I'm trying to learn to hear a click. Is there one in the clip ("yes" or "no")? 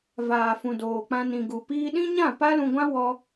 no